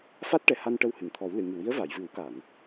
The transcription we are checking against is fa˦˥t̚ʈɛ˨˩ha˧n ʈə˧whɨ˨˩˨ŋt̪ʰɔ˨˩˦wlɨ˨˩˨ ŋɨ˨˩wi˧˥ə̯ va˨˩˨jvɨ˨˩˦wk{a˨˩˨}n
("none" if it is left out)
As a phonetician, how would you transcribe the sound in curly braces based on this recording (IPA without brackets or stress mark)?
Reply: a˨˩˨